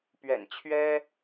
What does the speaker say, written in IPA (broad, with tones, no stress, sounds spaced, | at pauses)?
p ɥ ɛ̰˨˩ n t͡ɕʰ ɥ ɛ˥